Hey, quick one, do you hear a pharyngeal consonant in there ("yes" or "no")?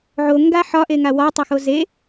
yes